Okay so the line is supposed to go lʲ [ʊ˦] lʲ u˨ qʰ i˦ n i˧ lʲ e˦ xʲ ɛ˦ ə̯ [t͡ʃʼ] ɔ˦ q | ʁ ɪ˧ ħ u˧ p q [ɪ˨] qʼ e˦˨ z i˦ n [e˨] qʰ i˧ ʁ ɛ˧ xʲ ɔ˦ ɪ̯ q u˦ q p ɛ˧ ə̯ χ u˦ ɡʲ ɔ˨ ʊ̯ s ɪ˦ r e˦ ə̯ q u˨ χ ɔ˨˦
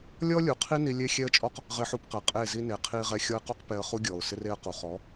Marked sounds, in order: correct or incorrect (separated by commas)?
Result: incorrect, correct, incorrect, correct